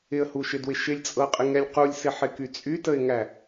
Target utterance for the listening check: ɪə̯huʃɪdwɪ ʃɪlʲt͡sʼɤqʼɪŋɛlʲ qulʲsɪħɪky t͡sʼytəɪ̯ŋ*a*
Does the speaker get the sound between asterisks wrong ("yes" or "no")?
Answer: yes